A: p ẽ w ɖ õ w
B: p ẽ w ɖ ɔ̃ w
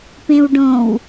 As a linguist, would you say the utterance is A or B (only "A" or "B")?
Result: A